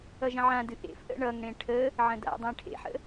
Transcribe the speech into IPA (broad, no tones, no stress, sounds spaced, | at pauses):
ʌ ʒ ə̃ ʕ ã d ɨ ʔ ḛ f ʔ ə̰ ɳ ʌ ŋ ɽ ẽ ʈʰ ə | ʕ ə̃ d a̰ dˤ ẽ ʈʰ ḛ ħ ə̰